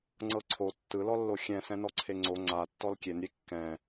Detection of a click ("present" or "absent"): present